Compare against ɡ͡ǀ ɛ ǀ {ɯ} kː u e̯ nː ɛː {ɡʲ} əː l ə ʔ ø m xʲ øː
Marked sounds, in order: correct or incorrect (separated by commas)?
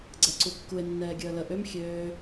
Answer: incorrect, correct